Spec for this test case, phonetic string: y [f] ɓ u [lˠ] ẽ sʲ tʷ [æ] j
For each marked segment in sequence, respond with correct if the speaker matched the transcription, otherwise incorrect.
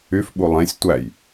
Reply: correct, correct, correct

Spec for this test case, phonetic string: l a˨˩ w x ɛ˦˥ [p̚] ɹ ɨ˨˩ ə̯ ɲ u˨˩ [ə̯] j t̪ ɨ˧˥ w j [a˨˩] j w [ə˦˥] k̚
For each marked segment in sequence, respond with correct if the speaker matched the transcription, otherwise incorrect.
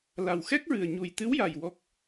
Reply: incorrect: k̚, incorrect: none, correct, incorrect: ɔ˦˥

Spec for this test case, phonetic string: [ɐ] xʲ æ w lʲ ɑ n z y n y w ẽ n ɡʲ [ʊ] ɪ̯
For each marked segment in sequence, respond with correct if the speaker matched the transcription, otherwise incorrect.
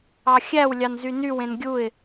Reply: incorrect: ɑ, incorrect: u

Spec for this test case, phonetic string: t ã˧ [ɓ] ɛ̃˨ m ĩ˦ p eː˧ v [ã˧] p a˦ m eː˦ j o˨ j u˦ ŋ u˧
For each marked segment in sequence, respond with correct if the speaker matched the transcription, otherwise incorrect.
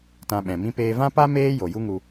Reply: correct, incorrect: ã˦

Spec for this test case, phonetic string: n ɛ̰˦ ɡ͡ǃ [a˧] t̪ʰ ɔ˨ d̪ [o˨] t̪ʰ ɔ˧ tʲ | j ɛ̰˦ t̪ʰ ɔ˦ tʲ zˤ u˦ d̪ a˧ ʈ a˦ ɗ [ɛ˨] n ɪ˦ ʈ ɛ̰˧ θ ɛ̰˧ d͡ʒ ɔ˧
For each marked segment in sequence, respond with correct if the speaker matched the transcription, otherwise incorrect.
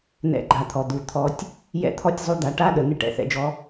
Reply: correct, incorrect: u˨, incorrect: ə˨

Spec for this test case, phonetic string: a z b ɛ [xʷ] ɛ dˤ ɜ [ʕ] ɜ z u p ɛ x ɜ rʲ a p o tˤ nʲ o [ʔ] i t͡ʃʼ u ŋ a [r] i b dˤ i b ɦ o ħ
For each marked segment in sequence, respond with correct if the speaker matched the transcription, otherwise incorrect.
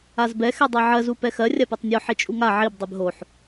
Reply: incorrect: x, correct, incorrect: ħ, incorrect: ʕ

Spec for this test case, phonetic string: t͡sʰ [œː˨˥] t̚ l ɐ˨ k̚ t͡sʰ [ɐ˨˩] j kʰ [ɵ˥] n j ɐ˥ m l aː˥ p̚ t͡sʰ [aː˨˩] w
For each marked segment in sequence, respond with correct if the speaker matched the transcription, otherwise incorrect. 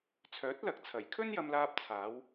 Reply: correct, correct, correct, incorrect: aː˨˥

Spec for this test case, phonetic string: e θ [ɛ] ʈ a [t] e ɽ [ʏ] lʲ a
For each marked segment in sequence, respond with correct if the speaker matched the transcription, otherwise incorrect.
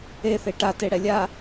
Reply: incorrect: e, correct, incorrect: ɛ

